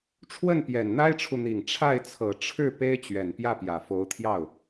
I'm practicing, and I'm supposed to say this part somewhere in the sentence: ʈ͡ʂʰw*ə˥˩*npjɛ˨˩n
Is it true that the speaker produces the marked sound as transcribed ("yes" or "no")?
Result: yes